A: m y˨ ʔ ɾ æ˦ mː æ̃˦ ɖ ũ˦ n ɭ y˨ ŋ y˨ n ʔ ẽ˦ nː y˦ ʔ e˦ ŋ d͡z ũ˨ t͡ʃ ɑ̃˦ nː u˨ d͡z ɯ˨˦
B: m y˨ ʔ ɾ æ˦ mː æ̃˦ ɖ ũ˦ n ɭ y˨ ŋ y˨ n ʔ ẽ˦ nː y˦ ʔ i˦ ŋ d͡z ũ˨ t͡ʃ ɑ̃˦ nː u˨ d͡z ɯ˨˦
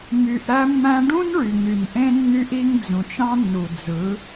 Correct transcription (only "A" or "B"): B